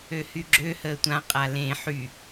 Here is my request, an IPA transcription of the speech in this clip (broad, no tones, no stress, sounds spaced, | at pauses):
ø h y ɡ͡ǁ ø h əː tʷ ã qʼ a l ẽ ħ y